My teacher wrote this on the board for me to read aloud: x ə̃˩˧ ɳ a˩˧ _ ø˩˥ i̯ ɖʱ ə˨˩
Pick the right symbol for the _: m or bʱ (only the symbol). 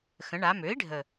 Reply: m